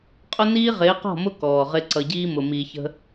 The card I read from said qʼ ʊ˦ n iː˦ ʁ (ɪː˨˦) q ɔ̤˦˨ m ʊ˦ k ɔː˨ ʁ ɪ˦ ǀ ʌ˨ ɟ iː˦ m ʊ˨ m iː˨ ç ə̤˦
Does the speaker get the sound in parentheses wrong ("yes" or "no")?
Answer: no